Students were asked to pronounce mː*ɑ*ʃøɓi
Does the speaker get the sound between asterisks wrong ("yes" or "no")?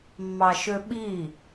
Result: no